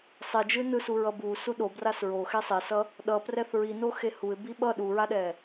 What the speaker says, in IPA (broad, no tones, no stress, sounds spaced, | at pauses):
sˤ e d͡ʒ ɯ n ɯ s u ɹ ʌ b u s u ɗ o b r a s ɹ o x e sˤ e s ʌ | ɗ ʌ p r ɛ θ ɹ i n o x e h u ɪ̯ b i ɓ ʌ ɗ u ɹ a ɗ ɛ